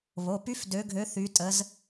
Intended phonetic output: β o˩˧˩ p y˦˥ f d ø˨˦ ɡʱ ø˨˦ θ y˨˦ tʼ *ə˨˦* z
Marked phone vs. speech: correct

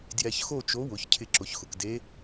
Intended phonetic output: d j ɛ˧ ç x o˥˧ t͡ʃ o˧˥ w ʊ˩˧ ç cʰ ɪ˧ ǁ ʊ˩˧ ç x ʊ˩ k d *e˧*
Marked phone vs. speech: incorrect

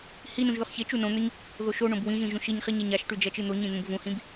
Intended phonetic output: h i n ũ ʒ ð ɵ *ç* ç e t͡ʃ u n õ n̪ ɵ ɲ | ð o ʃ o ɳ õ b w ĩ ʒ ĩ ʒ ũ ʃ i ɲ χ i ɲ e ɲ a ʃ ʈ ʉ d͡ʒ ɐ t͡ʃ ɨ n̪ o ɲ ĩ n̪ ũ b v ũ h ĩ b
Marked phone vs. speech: incorrect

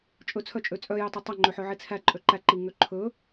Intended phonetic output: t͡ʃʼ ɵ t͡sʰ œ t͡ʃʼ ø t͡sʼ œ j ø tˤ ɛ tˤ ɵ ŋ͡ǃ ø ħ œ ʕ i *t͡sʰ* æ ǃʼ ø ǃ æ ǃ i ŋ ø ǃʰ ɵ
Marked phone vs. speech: correct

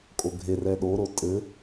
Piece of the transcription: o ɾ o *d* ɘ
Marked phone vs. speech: incorrect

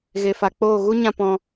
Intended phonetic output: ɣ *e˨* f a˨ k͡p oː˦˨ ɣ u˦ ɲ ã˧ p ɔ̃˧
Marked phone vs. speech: correct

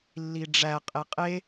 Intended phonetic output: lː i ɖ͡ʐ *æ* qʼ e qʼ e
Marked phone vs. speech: correct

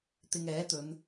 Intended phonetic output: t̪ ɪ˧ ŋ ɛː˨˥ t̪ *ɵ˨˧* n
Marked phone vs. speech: correct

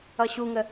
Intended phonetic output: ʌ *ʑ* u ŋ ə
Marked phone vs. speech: incorrect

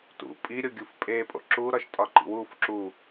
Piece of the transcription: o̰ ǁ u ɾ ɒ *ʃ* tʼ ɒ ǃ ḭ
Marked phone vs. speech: correct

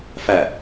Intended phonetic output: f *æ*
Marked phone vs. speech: correct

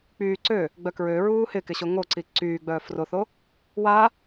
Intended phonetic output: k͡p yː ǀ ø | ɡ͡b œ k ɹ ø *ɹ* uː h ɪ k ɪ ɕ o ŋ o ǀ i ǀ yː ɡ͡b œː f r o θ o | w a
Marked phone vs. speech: correct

